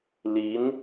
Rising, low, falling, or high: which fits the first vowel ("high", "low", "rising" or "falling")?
rising